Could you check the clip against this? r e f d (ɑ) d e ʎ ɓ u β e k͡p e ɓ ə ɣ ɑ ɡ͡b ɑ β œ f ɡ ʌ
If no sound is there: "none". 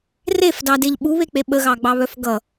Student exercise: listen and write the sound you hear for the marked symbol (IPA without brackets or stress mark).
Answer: ɑ